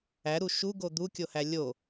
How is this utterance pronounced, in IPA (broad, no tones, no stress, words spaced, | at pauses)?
æɾu ʃuɡo d̪ukʲohæ lʲo